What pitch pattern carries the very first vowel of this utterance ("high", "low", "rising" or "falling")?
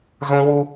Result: high